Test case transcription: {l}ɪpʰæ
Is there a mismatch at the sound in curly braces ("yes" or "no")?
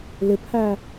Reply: no